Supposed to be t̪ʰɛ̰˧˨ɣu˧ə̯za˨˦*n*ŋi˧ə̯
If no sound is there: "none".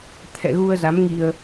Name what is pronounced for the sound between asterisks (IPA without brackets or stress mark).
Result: m